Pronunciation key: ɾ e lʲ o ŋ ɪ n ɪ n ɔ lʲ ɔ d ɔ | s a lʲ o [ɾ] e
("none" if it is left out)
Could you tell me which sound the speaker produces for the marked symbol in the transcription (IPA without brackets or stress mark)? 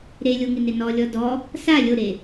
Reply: ɾ